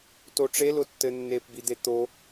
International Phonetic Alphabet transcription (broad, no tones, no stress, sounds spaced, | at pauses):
t o ʈ͡ʂ e l ʊ tː ɘ nː e p b i d̪ e t̪ o